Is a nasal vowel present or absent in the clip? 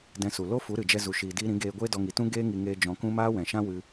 present